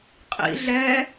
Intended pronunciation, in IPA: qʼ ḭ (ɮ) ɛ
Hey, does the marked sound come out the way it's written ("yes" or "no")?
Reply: yes